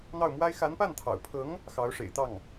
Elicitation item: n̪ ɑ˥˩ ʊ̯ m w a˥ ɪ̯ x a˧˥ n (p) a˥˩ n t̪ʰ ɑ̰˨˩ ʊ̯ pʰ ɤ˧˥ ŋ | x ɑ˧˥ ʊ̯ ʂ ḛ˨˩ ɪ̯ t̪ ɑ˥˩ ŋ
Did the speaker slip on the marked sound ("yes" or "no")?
no